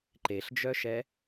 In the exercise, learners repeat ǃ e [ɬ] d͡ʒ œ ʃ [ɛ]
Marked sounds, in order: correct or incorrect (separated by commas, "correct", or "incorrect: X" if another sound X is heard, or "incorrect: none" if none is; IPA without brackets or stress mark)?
correct, correct